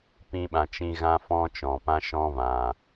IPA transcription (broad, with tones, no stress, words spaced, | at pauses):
pĩ˧ɓã˨t͡ʃĩ˧ ɣã˦fɔ̃˦t͡ʃɔ̃˨pã˦ ʃɔ̃˦vã˨